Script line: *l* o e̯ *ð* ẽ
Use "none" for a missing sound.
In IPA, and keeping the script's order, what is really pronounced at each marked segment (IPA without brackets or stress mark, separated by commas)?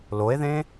l, ð